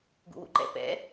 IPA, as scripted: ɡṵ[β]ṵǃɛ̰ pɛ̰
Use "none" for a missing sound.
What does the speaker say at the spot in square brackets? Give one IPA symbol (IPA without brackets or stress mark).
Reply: w